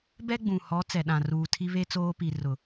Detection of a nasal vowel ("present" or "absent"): present